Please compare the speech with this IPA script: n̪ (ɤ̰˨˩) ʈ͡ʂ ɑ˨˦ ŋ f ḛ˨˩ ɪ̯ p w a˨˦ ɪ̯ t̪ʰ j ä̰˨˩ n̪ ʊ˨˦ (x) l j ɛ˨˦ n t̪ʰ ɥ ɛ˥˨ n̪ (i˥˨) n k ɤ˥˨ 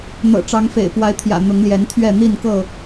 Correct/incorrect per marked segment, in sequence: correct, incorrect: ŋ, correct

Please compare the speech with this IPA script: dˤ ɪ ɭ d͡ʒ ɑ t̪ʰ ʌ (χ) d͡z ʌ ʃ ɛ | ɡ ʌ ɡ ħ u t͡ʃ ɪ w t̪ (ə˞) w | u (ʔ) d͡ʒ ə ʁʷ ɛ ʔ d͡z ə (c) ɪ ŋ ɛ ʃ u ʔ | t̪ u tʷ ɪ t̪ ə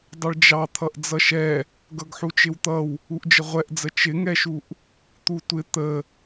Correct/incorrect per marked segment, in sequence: incorrect: ʔ, incorrect: ʌ, correct, incorrect: t͡ʃ

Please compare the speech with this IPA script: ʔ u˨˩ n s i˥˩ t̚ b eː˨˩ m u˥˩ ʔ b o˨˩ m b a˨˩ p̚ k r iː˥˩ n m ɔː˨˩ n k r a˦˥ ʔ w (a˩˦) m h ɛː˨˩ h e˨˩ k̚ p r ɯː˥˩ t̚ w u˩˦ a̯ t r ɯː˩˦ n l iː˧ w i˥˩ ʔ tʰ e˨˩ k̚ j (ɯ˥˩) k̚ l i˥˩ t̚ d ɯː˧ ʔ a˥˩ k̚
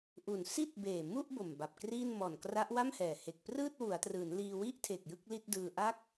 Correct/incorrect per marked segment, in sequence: incorrect: a˥˩, correct

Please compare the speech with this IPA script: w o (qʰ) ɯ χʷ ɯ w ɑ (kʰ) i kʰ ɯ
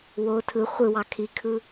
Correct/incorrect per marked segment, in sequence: incorrect: tʰ, correct

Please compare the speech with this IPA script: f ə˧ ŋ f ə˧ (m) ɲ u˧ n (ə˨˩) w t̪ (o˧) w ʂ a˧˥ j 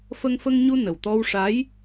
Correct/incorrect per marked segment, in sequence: incorrect: ŋ, correct, incorrect: ɔ˧

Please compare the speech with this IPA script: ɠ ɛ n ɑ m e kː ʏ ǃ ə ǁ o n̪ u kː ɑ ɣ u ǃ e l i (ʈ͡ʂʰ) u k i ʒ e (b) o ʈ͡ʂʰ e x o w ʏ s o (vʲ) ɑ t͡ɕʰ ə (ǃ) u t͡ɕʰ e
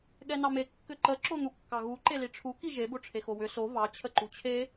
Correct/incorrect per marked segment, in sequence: correct, correct, incorrect: v, correct

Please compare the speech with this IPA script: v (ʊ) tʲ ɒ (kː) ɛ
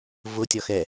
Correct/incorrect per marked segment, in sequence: correct, incorrect: x

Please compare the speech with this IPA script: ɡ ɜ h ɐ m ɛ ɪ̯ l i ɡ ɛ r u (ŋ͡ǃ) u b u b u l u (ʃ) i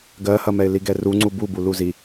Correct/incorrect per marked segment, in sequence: incorrect: ŋ͡ǀ, incorrect: z

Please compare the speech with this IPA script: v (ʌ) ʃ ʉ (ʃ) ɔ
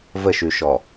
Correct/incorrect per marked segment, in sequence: incorrect: ə, correct

